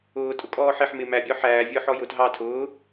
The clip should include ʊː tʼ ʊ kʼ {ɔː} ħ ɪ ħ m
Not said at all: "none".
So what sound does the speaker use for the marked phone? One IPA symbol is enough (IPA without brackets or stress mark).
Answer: ɔː